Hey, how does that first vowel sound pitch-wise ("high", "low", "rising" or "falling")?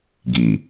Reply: low